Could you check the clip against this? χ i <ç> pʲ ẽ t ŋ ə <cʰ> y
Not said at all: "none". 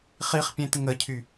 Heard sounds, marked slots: χ, cʰ

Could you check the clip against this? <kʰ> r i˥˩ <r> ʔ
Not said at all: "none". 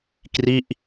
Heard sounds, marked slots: k, none

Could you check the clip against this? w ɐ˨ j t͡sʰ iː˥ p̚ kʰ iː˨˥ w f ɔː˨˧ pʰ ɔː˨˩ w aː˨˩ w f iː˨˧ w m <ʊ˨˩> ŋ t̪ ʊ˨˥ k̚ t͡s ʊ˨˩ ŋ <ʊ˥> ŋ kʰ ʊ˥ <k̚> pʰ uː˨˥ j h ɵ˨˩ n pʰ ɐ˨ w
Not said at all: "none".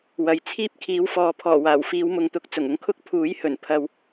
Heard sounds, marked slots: ʊ˨, ʊ˧, k̚

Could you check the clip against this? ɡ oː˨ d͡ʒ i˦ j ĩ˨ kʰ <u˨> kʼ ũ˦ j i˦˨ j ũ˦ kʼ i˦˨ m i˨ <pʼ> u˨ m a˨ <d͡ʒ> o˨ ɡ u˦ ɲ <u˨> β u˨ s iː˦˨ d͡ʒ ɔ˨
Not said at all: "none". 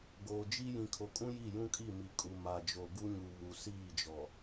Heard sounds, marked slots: o˨, kʼ, d͡ʒ, u˨

